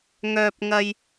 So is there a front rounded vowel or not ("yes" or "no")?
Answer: yes